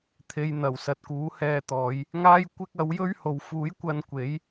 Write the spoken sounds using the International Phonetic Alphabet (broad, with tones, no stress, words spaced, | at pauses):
t̪ʰe˨jn̪ɐ˨˩w sɐ˨t̚kuː˨˥hɛː˧t̪ɔː˨˧j | ŋaː˥jkʷɪ˥k̚ ɐ˨˥wjɵ˥ɥho˨w fuː˨˥jkʷɐ˧n kʷe˨˥j